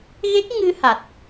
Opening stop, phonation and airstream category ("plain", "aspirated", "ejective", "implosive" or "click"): plain